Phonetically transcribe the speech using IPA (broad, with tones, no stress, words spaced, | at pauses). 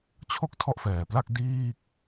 t͡ɕʰo˥˩k̚ tʰɔ˥˩ʔfɛː˨˩pla˥˩k̚ diː˥˩k̚